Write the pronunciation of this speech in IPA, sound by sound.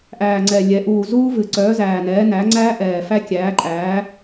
ʔ æː˨˩ ŋ͡ǀ ɛ˨˩ lʲ ɛ˩˥ ʔ uː˨˩ z uː˦˥ v ɨ˨˩ ǀ œː˩˥ z æː˨˩ n ɛː˩˥ n æ˩˥ ŋ͡ǀ æː˦˥ ʔ ɛː˨˩ f æ˦˥ kʲ æː˩˥ ǃʼ æː˩˥

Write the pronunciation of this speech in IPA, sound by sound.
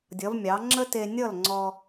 dʲ ʌ˩˥ v mʲ ɑ˩˥ ŋ͡ǁ ə˥ t e˧ nʲ ʌ˥˩ l ŋ͡ǀ ɔ˧

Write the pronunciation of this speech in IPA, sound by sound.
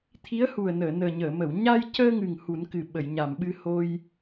t̪ʰ i˧˥ ə̯ h u˨˩ ə̯ n əː˨˩˨ n əː˨˩ ɲ əː˨˩˨ m ə˨˩˨ w ɲ a˧ j c əː˧ ŋ ɨ˨˩ ŋ h u˨˩˦ n k ɨ˨˩ ɓ ə˨˩˨ j ɲ a˨˩˨ m ɓ ɨ˧ h o˧ j

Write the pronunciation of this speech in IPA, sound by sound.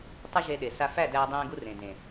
tˤ ɘ˦ ʒ e˧ ɗ e˨ s a˧ f æ˦˨ d æː˧ dˤ ẽː˧ ɡ u˧ r ẽ˨ d ẽ˨

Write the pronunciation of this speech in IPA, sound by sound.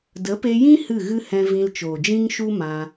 d ə˨˦ p e˧ j ĩ˦ h ɨ˦˨ ɣ ɨ˦ h ɛ̃˧ v ĩ˧ l t͡ʃ oː˨ d͡ʒ ĩ˦ ŋ ʃ u˦ m ã˧

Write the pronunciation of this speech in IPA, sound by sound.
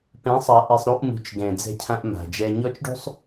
p ɛ̃˨˦ sˤ a˨ ʔ i˨ sˤ ɾ u˦ ʔ m ṳ˨ t͡ʃ ɡ ɛ̃˨ d͡z ɛ̤˦ cʰ ã˦ ʔ m a̤˨ d͡ʒ ɛ˦ ɲ ɔ˦ t͡ʃ ɖ ṳ˦ sˤ

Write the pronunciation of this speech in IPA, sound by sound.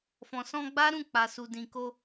f ɔ̃˨ s ɔ̃˧ ɡ͡b a˦ ɾ ũ˦˨ k͡p a˨ s u˨ d ĩ˨ k o˧

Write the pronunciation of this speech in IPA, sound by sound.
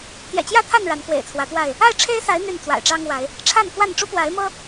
t̪ j ɛ̰˨˩ t͡ɕ j ä˥˨ t̪ʰ a˥˨ n ɻ a˨˦ n k w ḛ˨˩ ɪ̯ t͡sʰ w ä˨˦ t̪ w a˥˨ ɪ̯ | a˥˨ ɪ̯ ʈ͡ʂʰ e˦ ɪ̯ s a˨˦ ɪ̯ n̪ y˥˨ n t͡s w a̰˨˩ ɪ̯ ʈ͡ʂ ɑ˦ ŋ w a˨˦ ɪ̯ | ʈ͡ʂʰ a˥˨ n k w a˥˨ n ʈ͡ʂ u˦ p w a˨˦ ɪ̯ m ɤ˦

